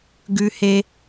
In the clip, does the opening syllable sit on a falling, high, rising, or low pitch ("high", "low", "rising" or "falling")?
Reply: high